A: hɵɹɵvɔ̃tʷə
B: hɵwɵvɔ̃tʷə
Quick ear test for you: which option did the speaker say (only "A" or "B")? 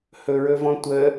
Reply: A